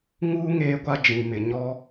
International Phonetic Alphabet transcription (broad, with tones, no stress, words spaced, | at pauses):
ŋuː˦ ŋeː˦ɡʷa˦ d͡ʒĩ˨mɪ˨ ɲɔ˦